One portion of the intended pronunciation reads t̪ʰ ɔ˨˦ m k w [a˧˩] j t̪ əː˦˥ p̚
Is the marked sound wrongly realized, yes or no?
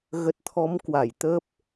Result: no